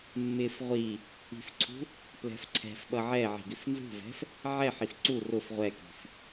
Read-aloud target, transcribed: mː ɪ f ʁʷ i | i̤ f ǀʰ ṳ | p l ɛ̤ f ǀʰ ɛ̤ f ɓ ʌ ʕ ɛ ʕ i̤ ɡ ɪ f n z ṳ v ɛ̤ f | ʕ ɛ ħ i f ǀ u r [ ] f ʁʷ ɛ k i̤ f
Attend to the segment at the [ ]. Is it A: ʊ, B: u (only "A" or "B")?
A